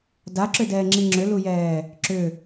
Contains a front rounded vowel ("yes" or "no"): yes